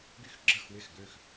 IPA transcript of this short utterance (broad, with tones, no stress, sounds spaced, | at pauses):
ɡ y˥ x ɡ͡ǁ ə˥˩ x w ɪ˥˩ x ɡ ø˥˩ x